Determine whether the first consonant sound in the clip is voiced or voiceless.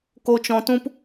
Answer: voiceless